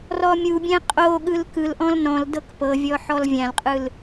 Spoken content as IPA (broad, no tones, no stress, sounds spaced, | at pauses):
r ɔ mʲ u bʲ ɛ̃ qʼ o ɠ ɯ l k ɯ l ʔ ɔ̃ l n ɔ̃ l d ɤ k p ɤ vʲ ɔ ħ ɔ l vʲ ã l qʼ ɯ l